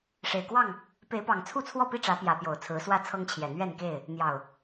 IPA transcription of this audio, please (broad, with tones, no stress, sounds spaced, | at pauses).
ʂ e˨˩ ɪ̯ k w ɑ˥˨ ŋ | p e˨˦ ɪ̯ p ɑ˨˩ ŋ t͡sʰ u˥˨ t͡sʰ w ɔ˥˨ p i˥˨ ʈ͡ʂ ä˨˦ p j ä˨˦ p j o˨˩ ʊ̯ t͡sʰ ɹ̩˨˦ s w ä˥˨ t͡sʰ ɤ˦ ŋ t͡ɕʰ j ɛ˨˩ n̪ ɥ ɛ˥˨ n k e˥˨ ɪ̯ | n̪ j ɑ˨˩ ʊ̯